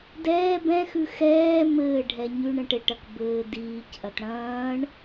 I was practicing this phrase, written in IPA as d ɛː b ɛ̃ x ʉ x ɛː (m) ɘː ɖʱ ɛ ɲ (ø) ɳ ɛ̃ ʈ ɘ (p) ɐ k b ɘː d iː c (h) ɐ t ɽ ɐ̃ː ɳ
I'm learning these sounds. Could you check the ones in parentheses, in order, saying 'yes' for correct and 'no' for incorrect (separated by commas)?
yes, no, no, no